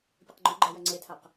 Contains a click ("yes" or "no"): yes